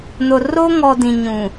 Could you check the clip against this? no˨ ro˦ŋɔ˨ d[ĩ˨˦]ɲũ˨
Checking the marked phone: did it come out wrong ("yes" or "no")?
yes